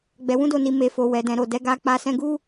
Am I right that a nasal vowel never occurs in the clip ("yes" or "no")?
no